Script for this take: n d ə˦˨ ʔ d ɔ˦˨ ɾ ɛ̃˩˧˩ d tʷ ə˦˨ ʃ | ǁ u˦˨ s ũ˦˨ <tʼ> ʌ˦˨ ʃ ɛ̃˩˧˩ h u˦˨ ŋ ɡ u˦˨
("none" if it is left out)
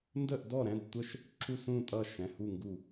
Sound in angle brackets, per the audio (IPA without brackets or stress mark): tʼ